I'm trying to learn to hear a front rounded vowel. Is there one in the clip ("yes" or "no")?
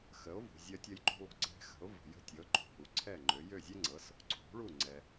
yes